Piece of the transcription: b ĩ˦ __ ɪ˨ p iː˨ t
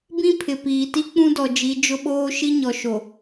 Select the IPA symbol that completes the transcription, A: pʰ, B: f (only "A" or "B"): A